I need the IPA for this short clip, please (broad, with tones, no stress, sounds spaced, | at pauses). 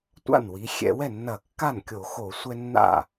tʷ a̰˥˩ n w i˩˧ xʲ ɛ̰˧˩˧ w ɛ˥˩ nː ɐ˧˩˧ kː a˥˩ n kʲ o˧˩˧ x o˧˩˧ sʷ ɛ˦ nː a̰˥˩